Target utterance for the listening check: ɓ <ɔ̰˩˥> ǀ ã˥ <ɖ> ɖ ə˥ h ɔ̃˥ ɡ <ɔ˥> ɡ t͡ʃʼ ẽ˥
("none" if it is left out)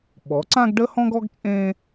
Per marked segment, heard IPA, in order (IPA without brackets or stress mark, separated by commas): ɔ˩˥, ɡ, ɔ˥